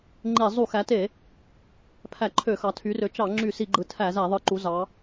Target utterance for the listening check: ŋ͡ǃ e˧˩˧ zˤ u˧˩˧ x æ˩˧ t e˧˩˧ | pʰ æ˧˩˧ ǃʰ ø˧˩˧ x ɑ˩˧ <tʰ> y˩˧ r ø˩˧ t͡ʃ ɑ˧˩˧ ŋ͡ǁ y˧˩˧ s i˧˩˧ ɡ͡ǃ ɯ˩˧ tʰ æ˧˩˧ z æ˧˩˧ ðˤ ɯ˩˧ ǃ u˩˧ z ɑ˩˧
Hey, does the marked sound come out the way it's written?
yes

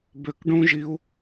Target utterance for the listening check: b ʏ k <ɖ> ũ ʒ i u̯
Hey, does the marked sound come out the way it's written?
yes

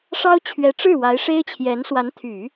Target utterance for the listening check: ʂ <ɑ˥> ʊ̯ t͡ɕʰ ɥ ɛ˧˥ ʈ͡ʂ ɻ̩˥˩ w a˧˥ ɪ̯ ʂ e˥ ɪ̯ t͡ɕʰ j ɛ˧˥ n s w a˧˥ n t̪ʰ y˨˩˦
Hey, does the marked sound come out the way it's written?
yes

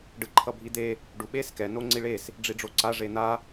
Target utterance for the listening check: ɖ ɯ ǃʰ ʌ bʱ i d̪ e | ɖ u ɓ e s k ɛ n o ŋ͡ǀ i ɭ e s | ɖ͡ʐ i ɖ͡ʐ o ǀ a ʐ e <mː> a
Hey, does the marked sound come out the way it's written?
no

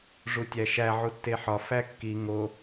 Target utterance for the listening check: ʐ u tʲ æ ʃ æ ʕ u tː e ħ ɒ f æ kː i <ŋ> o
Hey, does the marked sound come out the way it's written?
yes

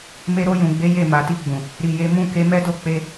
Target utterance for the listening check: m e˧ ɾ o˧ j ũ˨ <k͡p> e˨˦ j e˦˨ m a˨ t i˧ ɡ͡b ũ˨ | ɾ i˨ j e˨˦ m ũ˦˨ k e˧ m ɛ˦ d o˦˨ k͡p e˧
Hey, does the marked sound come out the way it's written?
no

